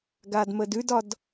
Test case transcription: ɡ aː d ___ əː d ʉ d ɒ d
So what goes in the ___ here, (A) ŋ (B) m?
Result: B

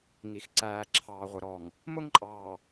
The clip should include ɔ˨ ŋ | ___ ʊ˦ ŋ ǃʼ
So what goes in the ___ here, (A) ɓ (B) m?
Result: B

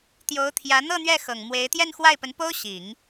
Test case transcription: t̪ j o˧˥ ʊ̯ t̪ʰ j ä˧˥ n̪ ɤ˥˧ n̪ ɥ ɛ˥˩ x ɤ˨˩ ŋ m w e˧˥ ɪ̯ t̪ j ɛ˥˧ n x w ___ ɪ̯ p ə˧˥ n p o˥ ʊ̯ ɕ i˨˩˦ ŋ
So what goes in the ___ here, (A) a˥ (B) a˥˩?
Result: B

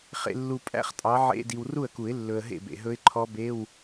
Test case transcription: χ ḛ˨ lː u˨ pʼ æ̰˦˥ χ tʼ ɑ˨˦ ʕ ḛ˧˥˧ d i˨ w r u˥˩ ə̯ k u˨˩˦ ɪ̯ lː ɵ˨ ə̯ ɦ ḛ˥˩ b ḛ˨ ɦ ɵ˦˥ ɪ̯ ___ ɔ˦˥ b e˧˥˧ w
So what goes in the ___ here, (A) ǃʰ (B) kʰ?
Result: A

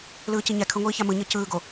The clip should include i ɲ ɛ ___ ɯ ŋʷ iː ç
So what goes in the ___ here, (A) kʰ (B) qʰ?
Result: A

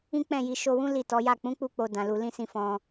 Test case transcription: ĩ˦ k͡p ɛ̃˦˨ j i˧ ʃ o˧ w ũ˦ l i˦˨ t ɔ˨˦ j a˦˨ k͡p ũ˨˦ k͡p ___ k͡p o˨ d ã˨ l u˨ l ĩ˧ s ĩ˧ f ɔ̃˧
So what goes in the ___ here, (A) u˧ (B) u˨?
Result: A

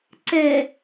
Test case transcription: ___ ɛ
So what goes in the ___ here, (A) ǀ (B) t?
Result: A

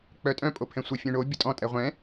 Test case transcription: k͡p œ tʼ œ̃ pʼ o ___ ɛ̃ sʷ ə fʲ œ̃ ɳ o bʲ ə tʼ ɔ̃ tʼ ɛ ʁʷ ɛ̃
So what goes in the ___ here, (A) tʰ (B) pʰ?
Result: B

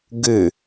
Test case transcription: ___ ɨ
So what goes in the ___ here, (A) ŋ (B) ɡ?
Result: B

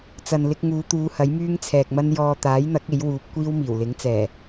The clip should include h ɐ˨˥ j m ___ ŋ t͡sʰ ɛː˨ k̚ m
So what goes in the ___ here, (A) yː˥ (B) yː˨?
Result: A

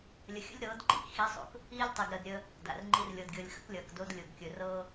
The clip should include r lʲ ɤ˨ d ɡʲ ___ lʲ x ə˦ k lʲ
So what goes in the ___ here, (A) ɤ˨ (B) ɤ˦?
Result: A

